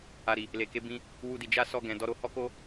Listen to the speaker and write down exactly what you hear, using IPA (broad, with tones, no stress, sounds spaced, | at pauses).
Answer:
a˨ ɾ i˨ | l e˨ k e˨˦ b ĩ˧ | w u˧ d i˨ d͡ʒ a˧ s ɔ˧ ɡ ɛ̃˨ d ɔ˧ ɾ o˧ h ɔ˦ k o˦